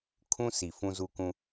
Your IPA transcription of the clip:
kʰ ũ˦ s i˨ f ũ˦ z u˦ k ũ˦

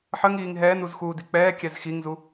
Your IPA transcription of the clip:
ħ ə ŋ iː ŋ ɦ ɛː n u z x uː d i k͡p ɛː kʲ ɛ z x i ŋ z u

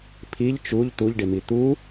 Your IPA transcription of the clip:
pʰ i ʎ t͡ʃ u ʎ t̪ u ʎ ɖ ɪ m i t̪ u

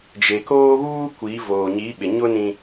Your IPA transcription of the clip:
d͡ʒ e˨ k oː˦ β uː˦ kʷ i˨˦ v oː˨ ɲ i˨˦ ɓ ɪ˨ ɲ ʊ˦ n ĩ˦

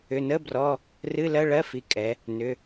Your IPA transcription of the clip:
ʏ˩˧˩ n ə˧˥˧ b r ɔ˧˥˧ | r ɨ˧˥˧ l ɜ˧˥˧ ɭ ɜ˧˥˧ f i˩˧˩ kʼ ɛ˩˧ | n ʏ˩˧˩

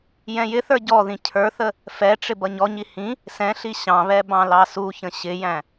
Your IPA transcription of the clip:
j ɛ̃ j ɪ θ ə˞ ɟ ɔ ð ĩ cʰ ə˞ θ ə | f ɛ ʈ͡ʂ ɪ b ʌ ɲ ɔ ɲ i h ĩ | s ɛ̃ ɬ i ɕ ɑ̃ β ɛ b ɑ̃ l ɑ s u ç ə̃ ɕ ɪ j æ̃

